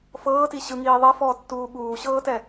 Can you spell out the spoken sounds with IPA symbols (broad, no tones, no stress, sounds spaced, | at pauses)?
f ɤː t i ɕ ɯ ŋ iː ðˤ ɛ f ɔː tː uː ɓ uː ɕ ɤː t ɛ